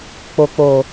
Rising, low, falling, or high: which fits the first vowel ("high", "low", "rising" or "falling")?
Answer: low